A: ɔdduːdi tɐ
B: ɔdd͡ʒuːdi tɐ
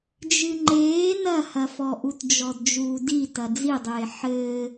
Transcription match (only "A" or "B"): B